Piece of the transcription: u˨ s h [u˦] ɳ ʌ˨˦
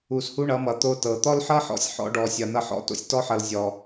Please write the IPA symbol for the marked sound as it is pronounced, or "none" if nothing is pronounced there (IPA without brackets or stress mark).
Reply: u˦